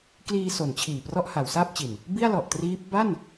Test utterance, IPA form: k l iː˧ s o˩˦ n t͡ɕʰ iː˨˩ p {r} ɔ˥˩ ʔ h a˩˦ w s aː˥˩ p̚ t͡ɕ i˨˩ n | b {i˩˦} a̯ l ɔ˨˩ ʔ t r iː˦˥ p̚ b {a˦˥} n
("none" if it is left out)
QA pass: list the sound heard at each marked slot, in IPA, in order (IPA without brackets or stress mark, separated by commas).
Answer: r, i˥˩, a˥˩